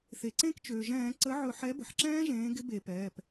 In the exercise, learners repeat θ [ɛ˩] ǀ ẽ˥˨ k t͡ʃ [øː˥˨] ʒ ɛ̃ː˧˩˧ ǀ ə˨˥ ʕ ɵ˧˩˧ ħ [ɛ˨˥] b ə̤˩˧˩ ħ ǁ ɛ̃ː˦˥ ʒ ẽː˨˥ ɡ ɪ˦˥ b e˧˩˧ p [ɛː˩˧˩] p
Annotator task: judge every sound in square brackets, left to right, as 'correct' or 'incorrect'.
incorrect, incorrect, correct, correct

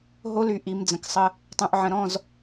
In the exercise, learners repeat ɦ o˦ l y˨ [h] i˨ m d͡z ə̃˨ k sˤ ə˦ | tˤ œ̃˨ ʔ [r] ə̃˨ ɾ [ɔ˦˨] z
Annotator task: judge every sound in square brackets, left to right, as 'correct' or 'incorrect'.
incorrect, incorrect, incorrect

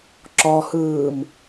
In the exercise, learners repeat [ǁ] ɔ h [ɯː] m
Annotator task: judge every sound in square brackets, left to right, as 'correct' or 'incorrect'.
correct, correct

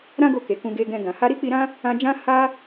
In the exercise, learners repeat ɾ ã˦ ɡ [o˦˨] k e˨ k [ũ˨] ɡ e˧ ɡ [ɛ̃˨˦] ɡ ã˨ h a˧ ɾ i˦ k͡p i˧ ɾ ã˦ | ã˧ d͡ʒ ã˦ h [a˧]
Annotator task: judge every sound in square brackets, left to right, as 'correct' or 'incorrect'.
correct, incorrect, incorrect, incorrect

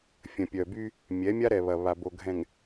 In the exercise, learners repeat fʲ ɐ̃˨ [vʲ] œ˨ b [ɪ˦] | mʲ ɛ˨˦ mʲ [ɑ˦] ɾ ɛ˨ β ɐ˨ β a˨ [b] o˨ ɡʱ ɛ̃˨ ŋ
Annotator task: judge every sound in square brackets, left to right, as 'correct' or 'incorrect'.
incorrect, incorrect, incorrect, correct

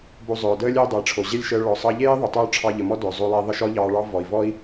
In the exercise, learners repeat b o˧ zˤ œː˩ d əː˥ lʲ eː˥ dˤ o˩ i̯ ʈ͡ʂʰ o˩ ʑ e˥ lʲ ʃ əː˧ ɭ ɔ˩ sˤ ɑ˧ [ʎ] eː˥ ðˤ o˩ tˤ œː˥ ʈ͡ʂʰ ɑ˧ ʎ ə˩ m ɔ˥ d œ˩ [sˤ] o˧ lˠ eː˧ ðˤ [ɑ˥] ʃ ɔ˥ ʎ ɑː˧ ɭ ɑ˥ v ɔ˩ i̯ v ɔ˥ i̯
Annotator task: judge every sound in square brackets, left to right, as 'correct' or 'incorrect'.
correct, incorrect, incorrect

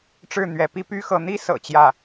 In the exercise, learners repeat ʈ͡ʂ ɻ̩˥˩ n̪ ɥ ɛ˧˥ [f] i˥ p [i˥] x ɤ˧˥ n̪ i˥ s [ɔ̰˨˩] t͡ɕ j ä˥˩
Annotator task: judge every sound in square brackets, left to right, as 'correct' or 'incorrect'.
incorrect, incorrect, incorrect

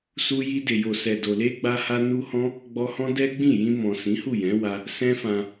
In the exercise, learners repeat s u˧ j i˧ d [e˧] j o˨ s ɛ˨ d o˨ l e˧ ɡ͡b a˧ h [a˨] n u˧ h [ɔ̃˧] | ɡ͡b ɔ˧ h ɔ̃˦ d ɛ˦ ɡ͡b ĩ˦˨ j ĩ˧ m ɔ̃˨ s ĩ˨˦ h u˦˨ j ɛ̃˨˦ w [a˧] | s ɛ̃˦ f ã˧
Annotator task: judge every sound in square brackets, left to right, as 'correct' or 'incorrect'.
incorrect, incorrect, incorrect, correct

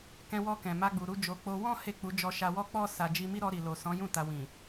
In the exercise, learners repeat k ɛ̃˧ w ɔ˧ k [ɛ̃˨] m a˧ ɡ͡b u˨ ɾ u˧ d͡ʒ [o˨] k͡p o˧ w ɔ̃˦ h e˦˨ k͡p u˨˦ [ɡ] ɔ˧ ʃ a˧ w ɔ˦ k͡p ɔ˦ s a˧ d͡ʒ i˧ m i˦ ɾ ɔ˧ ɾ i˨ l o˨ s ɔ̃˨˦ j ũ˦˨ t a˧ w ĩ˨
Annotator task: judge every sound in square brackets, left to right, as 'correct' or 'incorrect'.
correct, correct, incorrect

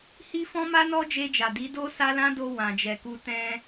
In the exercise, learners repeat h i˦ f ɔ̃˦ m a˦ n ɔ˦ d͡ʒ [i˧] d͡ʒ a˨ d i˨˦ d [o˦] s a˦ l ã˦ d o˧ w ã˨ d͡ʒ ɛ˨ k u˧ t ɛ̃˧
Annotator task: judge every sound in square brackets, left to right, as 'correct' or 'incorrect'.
incorrect, correct

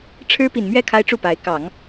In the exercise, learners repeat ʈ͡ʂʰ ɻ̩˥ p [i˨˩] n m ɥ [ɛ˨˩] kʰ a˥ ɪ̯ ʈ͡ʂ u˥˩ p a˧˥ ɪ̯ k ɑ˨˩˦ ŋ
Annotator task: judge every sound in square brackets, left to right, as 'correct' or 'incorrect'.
correct, incorrect

